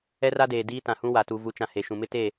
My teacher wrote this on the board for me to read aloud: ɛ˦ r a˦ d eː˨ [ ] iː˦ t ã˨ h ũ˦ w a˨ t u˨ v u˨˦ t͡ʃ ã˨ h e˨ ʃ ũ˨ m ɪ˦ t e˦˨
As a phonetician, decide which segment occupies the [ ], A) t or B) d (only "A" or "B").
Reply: B